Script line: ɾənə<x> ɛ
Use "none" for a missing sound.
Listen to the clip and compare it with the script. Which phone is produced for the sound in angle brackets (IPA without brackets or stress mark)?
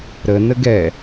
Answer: ɡ